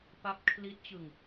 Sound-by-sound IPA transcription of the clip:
p a˦˥ p̚ kʰ l i˦˥ t̚ t͡ɕ ɯ˧ ŋ

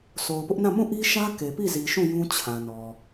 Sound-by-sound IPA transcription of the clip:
s o˨ ʊ̯ p ʊ˦ ʔ n ã˦˨ m ũ˦˨ ʔ i˦ ʃ ä˦ k e˨ p i˦˨ z i˨ ʃ ũ˦˨ j ũ˦ t͡ɕʰ ã˨ n ɔ˨

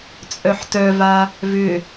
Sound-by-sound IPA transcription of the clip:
t͡sʼ œ ħ t œ v a | v ʏ

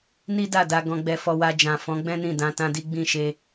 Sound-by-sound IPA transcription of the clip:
n i˦ d a˦˨ d a˧ ɡ ɔ̃˧ ɡ͡b ɛ˧ f ɔ˧ w a˧ d͡ʒ ã˨ f ɔ̃˨˦ ɡ͡b ɛ̃˦ n ĩ˦˨ d ã˧ t ã˦ d i˦ ɡ͡b ĩ˦˨ ʃ e˧

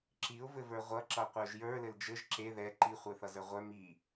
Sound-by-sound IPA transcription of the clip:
ǁ i ʊ̯ v ɘ v ə˞ ʁʷ ʌ ǁ ʌ qʷ œ ʒ j ə˞ l ɘ l d͡ʒ ɘ ʒ ǁ e ð ɛ ǃ i χʷ œ θ ʌ z ə˞ ʁʷ œ m i

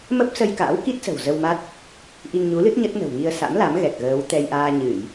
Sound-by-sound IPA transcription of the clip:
m ə˦˥ p̚ s ə˧ j k a̰ː˧˥ w k i˦˥ t̚ s ə̤˨˩ w z ə˧ w m a˦˥ t̚ | ʔ i˧ ŋ ɲ u˨˦ l ɨ˦˥ t̚ ɲ ə˦˥ t̚ n ə̤˨˩ w ŋ i˧ ə̯ s a̰˧˥ m l a˨˦ m ɣ ɛ˨˩ k̚ ɣ əː˨˦ w t̪ ɛ˧ j ʔ aː˧ ɲ ɨ˧˩˨ j

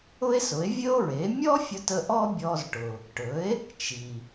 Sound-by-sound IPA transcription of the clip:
ʊ˥ e̯ s ʊ˩˥ e̯ vʲ ɵ˥ o̯ ɹ e˩˥ mʲ ɔ˥ fʲ ʊ˧ t ə˧ ʔ ɔ˥ bʲ ɔ˧ z ʈ ʊ˩ | ʈ ɵ˩˥ e̯ | t͡ʃ i˩

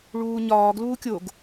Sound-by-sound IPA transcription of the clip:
ɭ uː ɲ ɒː ɡ l uː kʲ o ɡ

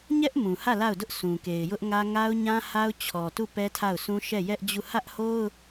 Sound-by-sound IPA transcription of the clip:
ɲ ɛ˦ ʔ m ũ˨ h ä˦˨ l a˦˨ ʊ̯ d ʊ˦ ʔ sʰ ũ˨ k e˨ ɪ̯ j ʊ˦ ʔ ŋ ä˦ ŋ a˦ ʊ̯ ɲ ã˦ h a˦ ʊ̯ t͡ɕʰ ɔ˨ t u˦˨ p ɛ˦ tʰ a˦˨ ʊ̯ sʰ ũ˦ ʃ ɛ˦˨ j ɛ˦ ʔ d͡ʑ u˦˨ h ä˦ ʔ h o˦ ʊ̯

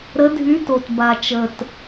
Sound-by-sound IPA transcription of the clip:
ɾ ə˧˥ dʱ y˧˥ t o˨˩ t b a˨˩ t͡ʃ ə˨˩ t

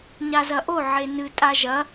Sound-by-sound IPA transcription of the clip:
ɲ a z ɐ ʔ o ʕ e n ɨ tʼ a ʒ ɐ

